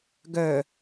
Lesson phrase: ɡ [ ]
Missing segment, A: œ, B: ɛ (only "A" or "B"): A